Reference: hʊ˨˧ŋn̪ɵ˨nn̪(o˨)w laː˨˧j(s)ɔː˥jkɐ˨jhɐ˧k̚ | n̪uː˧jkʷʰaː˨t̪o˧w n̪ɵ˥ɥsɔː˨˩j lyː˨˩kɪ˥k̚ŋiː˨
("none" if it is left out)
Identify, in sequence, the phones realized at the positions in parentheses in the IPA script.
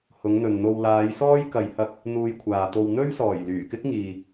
o˧, s

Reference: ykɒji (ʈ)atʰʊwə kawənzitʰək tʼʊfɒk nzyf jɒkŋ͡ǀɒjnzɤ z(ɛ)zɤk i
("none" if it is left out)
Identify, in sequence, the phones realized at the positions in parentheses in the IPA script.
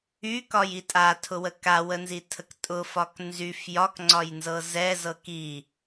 tʼ, ɛ

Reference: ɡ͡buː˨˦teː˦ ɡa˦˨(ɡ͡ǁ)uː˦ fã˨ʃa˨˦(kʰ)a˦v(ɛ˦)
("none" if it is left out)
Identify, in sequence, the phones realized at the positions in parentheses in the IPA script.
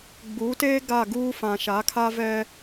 ɡ, kʰ, ɛ˦

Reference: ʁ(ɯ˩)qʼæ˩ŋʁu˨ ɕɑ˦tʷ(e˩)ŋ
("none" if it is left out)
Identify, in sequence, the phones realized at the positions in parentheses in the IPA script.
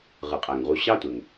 ɯ˩, e˩

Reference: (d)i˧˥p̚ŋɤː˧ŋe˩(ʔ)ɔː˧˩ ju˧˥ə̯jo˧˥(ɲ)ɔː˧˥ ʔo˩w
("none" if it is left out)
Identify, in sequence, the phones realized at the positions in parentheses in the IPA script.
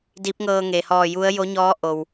d, h, ɲ

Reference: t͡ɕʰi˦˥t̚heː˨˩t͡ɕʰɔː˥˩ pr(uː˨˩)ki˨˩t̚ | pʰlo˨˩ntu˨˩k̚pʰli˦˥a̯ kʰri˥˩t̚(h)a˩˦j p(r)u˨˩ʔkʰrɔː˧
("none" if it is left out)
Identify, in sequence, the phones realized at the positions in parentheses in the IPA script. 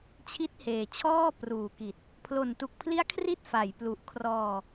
uː˨˩, f, l

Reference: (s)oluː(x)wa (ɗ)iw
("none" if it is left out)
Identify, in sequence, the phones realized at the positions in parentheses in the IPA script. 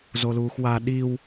z, x, ɗ

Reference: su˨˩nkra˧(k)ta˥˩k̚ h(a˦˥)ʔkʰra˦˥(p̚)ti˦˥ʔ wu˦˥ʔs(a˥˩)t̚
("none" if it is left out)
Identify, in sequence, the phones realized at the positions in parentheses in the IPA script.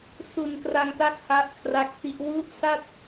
ŋ, a˦˥, k̚, a˥˩

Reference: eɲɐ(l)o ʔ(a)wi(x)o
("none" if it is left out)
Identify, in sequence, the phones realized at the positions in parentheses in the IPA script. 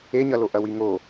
l, ɐ, ŋ

